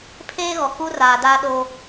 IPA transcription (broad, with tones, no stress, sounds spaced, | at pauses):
pʰ eː˦ ɣ ɔ˨ k u˦ r aː˨ d aː˦ ɗ o˦